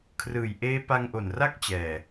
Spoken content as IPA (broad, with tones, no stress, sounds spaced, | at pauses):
kʰ r ɯː˨˩ j ʔ eː˦˥ p a˧ ŋ ʔ o˨˩ n r a˥˩ k̚ t͡ɕ ɛː˨˩